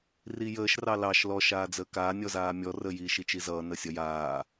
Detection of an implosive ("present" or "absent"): absent